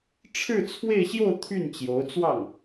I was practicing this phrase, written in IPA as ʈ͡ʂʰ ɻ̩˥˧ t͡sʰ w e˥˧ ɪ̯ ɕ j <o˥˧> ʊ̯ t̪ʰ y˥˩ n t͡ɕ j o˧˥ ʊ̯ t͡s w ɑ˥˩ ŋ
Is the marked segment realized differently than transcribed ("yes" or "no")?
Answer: no